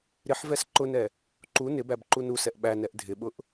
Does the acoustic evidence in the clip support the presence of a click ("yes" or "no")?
yes